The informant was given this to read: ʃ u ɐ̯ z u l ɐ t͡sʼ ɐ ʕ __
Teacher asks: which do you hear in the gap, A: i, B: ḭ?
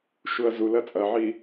A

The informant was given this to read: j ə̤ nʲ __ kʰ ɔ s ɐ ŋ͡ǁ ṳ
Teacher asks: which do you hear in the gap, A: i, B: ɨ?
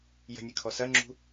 B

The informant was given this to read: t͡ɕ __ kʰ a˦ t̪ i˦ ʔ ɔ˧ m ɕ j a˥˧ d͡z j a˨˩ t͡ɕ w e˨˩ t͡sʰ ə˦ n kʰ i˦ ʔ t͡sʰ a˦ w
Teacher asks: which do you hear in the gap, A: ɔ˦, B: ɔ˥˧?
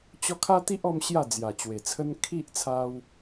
A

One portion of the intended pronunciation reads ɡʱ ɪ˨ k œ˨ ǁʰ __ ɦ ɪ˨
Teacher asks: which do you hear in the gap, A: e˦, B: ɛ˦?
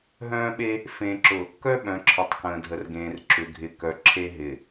A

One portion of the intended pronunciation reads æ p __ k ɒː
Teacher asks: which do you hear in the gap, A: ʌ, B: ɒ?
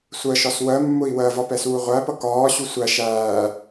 A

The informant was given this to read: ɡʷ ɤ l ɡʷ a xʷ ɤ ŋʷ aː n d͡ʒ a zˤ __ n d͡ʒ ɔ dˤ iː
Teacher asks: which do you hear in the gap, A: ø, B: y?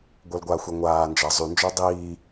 B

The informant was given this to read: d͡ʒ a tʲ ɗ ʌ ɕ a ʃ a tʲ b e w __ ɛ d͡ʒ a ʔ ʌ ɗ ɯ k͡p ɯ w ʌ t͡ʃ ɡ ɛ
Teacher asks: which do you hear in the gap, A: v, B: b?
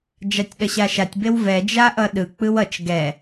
A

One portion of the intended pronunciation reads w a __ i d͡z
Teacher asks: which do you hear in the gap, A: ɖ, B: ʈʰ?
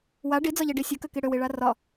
A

